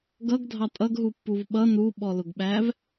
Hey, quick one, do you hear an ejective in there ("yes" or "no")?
yes